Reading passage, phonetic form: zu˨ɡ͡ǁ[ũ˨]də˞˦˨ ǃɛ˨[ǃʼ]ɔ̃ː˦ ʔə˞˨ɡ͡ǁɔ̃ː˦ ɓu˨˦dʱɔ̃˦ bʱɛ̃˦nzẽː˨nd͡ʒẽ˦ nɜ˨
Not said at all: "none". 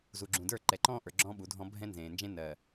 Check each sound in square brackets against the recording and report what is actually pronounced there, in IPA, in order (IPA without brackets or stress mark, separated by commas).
ũ˨, ǃ